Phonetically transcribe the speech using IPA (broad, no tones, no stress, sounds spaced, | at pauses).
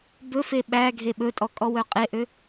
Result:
b ɵ f e ɓ æ ɡʱ e ɓ ɵ tʼ ɔ kʼ ɔ w œ qʼ e ʔ ø